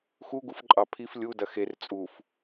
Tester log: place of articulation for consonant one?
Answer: velar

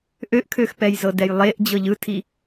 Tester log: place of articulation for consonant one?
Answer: glottal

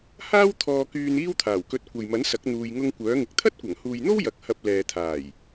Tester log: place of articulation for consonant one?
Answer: glottal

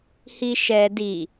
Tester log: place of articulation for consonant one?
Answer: glottal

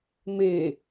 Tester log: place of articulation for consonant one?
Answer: labial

